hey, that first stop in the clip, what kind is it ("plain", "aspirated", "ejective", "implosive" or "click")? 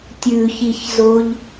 plain